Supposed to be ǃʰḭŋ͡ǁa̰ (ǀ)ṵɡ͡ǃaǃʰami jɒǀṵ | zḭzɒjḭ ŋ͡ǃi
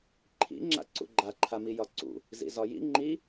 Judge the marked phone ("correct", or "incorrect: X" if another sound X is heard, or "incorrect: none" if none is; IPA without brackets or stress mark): correct